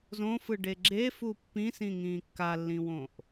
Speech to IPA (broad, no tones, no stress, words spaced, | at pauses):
zõfɯɖe ɡ͡ǁefu pːĩsĩŋĩː kːalːĩwõʔ